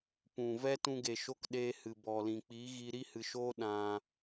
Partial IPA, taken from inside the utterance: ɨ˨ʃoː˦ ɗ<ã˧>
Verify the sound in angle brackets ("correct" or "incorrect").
correct